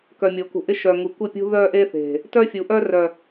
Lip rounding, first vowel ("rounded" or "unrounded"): rounded